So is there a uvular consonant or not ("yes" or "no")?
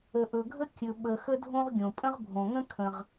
yes